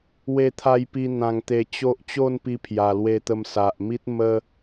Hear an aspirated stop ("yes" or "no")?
yes